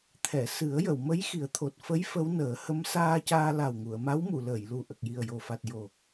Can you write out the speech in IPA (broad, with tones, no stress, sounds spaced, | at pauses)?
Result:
t̪ʰ ɛ˨˩˨ s ɨ˨˩˦ ə̯ j ə˨˩˨ w m ə˧˥ j x i˨˩˦ ə̯ t̪ʰ o˨˩ t̚ f ə˧˥ j f ə˧˥ w n əː˨˩˦ h ə˧˥ m s aː˧ c aː˧ l a˨˩ w ŋ u˨˩˨ ə̯ m a˧˥ w m u˨˩˨ l əː˨˩˨ j l u˨˩ ʔ ə˨˩ k̚ j i˨˩ ə̯ j o˨˩ f a˨˩ t̚ j o˨˩